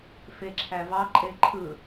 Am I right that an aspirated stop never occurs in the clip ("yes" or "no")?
no